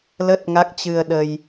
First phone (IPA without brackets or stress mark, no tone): l